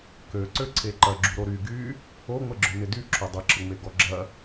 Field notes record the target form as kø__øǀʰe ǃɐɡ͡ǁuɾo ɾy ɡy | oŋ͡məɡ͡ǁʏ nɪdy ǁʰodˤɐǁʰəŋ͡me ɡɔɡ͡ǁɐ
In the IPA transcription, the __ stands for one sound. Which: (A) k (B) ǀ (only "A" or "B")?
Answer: B